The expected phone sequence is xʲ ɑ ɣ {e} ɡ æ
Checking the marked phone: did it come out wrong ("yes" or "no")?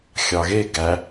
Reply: no